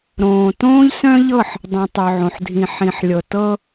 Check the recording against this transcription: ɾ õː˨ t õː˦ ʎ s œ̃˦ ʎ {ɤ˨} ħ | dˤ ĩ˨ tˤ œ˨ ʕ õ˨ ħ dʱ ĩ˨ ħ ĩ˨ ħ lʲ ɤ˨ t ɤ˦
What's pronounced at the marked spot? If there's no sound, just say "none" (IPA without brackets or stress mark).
ɤ˦˨